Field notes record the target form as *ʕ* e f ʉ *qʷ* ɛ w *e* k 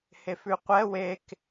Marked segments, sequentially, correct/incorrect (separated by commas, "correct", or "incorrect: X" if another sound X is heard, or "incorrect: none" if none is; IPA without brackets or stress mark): incorrect: h, correct, correct